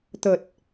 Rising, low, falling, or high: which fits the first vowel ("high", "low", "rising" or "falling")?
low